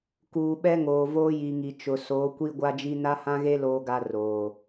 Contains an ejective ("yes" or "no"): no